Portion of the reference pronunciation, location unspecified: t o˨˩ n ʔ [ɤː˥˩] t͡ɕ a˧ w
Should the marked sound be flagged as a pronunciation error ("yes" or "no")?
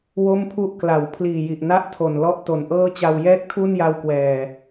no